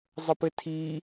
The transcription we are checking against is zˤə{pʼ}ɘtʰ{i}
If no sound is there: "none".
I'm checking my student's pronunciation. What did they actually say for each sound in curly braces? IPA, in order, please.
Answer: p, i

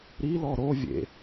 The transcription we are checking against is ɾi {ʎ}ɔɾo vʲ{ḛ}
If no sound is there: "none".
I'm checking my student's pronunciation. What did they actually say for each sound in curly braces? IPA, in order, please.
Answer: l, ḛ

